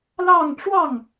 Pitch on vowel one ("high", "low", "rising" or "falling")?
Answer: falling